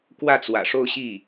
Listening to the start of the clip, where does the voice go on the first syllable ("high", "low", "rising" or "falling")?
falling